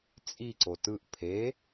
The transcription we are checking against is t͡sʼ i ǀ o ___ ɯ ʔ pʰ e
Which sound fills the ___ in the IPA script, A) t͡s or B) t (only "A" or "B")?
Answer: B